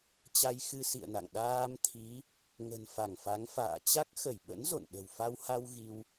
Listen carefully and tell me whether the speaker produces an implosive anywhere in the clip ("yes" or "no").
yes